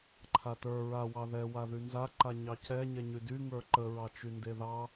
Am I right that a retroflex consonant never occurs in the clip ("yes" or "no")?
yes